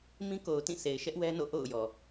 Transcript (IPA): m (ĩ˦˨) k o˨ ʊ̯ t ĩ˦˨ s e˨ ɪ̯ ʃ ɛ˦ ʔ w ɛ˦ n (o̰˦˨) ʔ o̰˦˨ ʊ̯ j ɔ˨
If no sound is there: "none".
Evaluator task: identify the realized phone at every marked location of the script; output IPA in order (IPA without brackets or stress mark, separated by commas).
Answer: ĩ˦, o̰˦˨